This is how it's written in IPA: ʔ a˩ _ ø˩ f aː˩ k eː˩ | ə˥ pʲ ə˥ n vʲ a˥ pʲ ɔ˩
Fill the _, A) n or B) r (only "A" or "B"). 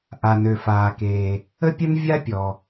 A